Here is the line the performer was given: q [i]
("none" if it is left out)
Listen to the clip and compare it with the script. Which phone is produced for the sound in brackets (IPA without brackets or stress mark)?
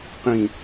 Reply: ĩ